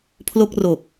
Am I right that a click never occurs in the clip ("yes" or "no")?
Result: yes